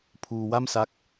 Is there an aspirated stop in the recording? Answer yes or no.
yes